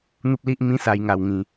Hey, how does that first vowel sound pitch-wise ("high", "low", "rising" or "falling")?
high